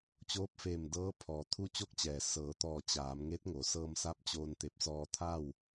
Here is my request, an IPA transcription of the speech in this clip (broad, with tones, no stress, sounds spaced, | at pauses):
t͡ɕ oː˧˥ p̚ f eː˧˩ m d ɤː˧˥ pʰ ɔː˩ t̪ʰ u˧ t͡ɕ o˧ k̚ t͡ɕ ɛː˩ s ɤː˩˧ t̪ ɔː˧˩ t͡ɕ aː˩˧ m ŋ e˧˥ t̚ ŋ o˩˧ s ɤː˧ m s a˧˥ p̚ t͡ɕ oː˧ n t̪ e˧˩ p̚ s ɔː˧ t̪ʰ a˥˨ w